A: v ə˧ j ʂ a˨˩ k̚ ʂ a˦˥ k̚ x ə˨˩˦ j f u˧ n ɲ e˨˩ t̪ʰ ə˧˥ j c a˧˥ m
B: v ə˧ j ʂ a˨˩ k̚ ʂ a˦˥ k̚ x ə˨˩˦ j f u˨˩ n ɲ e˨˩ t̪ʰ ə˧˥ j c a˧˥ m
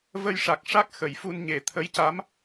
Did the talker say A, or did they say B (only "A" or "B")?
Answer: A